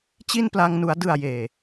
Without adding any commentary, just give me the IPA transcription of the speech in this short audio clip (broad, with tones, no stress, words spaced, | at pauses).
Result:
t͡ɕi˥˩npla˧ŋnu˩˦a̯ dɯ˨˩a̯ jeː˨˩